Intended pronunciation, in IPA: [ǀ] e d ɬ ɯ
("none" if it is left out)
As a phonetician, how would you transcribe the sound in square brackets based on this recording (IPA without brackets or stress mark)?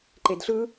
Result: ǃ